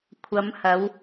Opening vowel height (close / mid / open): open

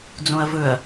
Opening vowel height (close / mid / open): mid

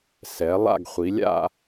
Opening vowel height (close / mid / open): mid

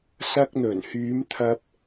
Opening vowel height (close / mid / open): open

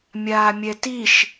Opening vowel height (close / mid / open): open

